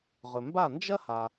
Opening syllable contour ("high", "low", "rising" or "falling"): low